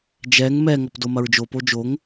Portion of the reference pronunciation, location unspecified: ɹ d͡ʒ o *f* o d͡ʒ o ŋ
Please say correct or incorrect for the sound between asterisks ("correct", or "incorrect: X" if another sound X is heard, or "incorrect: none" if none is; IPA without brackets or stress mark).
incorrect: p